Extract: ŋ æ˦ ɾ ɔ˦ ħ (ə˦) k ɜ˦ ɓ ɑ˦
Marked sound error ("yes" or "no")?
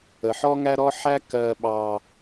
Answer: yes